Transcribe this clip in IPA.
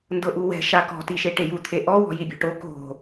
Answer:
n d ɤ ʔ u w ɛ̤ ʃ a k ɔ̤ t i ʃ e ʈ e j u t̪ʰ e ʔ ɔ w ɔ̤ j i bʲ ɔ̤ ʈ o k o̤

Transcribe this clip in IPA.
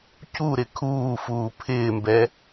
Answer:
c u ɾ ɪ kʰ uː f uː pʰ ɪː m b ɛ

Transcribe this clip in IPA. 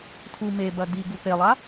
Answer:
tʰ u m e b ɐ d i ɡ u p e lˠ a

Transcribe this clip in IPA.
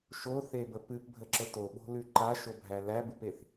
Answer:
ʃ o θ e b ə p ɨ p bʱ ə ǁ ə t o ɓ o̤ l ʉ ǃ a ʃ o bʱ æ l æ b ɨ p e θ

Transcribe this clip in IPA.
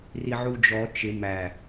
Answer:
r i ʕ u d͡ʒ ɔ t͡ʃ ɪ m æ

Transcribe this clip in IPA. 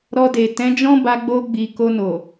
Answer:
ɾ ɔ˧ d e˨ t ɛ̃˨˦ d͡ʒ ɔ̃˦ b a˧ ɡ͡b o˧ ɡ͡b i˨ k o˧ n o˨

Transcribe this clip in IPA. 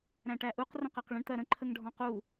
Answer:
ɾ æ̃ ʈ æ ʔ u q r ə̃ q ɜ q ɭ ə̃ ɳ t̪ ɜ ɾ ə̃ ǃʰ ə ŋ ɖʱ ɔ̃ q u

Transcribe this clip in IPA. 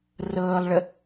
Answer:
r ɤː lˠ ɭ ə

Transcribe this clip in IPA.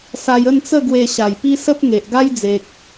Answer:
s a˧ j ə˥˧ n t͡s ə˥˧ ɡ w e˧ ɕ a˨˩ j p i˦ s ə˦ p̚ ŋ e˨ ʔ ɡ a˦ j d͡z e˨ k̚

